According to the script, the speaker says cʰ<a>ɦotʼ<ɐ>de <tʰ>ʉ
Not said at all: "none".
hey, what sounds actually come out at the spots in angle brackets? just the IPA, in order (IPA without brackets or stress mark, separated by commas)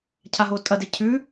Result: a, ɐ, cʰ